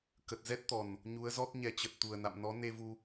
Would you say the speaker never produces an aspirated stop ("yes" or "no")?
yes